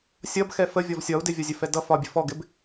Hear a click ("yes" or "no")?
no